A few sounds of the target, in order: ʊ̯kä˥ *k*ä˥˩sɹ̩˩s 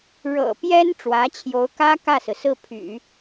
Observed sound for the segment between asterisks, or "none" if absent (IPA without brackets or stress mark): k